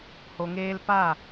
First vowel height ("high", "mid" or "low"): mid